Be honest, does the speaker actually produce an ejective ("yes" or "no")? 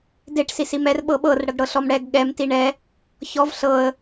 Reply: no